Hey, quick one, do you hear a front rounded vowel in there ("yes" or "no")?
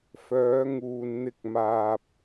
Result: yes